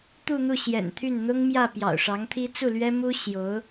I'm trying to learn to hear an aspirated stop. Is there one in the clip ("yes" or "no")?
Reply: yes